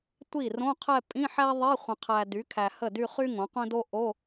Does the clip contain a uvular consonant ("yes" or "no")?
yes